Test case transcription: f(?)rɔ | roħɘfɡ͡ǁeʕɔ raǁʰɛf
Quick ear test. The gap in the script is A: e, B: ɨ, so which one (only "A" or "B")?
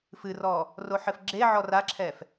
B